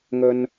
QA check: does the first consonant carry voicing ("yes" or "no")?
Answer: yes